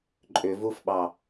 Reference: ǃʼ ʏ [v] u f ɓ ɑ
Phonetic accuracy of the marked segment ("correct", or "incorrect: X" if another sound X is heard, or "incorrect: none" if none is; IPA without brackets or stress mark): correct